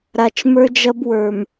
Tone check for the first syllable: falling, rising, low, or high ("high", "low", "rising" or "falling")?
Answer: low